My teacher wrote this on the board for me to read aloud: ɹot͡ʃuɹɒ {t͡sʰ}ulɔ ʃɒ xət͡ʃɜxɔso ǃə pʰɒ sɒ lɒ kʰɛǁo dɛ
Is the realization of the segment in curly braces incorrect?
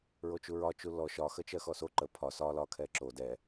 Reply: yes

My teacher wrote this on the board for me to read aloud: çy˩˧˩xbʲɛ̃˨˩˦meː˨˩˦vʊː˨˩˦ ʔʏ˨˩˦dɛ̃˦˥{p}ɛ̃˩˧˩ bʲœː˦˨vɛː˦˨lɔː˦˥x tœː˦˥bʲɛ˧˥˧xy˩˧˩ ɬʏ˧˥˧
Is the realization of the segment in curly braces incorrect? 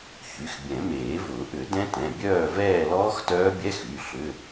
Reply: yes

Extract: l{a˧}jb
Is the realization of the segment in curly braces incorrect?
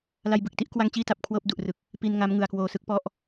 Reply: no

